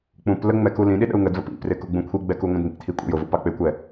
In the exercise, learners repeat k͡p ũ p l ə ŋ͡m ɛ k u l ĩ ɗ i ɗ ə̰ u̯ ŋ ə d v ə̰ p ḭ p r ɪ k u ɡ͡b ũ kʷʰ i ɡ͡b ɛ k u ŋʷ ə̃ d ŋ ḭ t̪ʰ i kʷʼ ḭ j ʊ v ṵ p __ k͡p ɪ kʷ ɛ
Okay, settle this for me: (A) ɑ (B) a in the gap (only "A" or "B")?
A